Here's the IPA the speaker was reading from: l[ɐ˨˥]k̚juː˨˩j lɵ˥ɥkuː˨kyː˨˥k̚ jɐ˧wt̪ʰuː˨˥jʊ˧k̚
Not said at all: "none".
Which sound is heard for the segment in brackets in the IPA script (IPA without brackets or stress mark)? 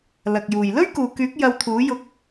ɐ˨